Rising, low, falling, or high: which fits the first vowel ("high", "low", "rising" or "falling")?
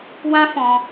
high